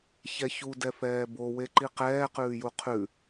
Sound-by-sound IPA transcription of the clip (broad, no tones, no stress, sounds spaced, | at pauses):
ç ɛ ç u d ɛ f ɛː b o w e ǃ i q ɛː q ʉː j u qʰ ʉ